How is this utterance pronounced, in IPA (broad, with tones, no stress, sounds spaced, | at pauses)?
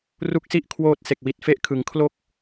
r u˥˩ k̚ s i˥˩ ʔ kʰ w oː˦˥ t̚ s e˨˩ k̚ w i˨˩ t̚ f e˦˥ ʔ kʰ ɯ˩˦ ŋ kʰ l o˥˩ k̚